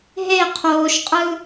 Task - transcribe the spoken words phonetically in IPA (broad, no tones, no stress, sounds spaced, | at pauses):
ɦ e qʰ oː ʃ qʼ ɯ